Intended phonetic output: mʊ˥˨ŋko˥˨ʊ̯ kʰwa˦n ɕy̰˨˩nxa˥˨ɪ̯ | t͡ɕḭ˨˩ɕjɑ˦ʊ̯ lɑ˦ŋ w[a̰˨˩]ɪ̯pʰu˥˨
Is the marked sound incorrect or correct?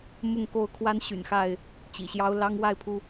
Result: incorrect